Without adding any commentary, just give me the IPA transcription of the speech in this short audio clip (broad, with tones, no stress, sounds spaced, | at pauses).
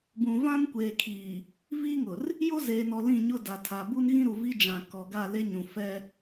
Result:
b ũ˨ v ã˦ n kʷ eː˨ kʰ iː˨ | v iː˦ ŋ ʊ˨ r | j o˦ z eː˨ n ɔ˨ l ĩ˦˨ ɲ ʊ˦ d a˨ tʰ a˨ b u˦ n ɣ ĩ˦ ɾ u˨ v i˦ d͡ʒ ã˨ k ɔ˨ ɡ a˦˨ l e˦ ɲ ũ˨ f ɛ˦